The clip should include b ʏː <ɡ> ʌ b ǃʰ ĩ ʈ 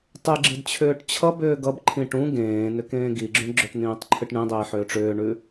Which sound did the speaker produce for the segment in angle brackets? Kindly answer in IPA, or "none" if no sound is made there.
ɡ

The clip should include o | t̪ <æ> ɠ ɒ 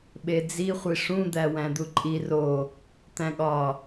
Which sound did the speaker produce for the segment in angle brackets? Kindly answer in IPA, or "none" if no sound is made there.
æ̃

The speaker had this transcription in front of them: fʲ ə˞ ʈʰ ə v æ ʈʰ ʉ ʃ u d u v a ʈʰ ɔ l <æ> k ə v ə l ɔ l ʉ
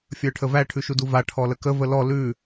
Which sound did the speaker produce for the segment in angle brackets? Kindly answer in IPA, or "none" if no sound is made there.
ə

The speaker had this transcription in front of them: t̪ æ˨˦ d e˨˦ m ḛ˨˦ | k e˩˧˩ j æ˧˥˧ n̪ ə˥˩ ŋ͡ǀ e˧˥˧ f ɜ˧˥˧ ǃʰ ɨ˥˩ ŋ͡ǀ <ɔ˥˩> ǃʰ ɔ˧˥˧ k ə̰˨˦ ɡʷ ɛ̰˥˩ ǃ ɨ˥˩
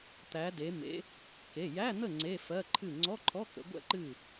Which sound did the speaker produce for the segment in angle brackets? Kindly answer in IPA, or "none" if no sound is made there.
ɔ˧˥˧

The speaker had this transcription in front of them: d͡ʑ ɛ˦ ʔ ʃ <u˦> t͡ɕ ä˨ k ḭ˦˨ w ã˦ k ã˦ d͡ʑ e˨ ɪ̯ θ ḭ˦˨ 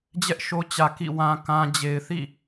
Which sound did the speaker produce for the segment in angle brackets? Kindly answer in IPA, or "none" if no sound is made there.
o˦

